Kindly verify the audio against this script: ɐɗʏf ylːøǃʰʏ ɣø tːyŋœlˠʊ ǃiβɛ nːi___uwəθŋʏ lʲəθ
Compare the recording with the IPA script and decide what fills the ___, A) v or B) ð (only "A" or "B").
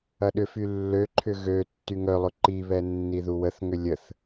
B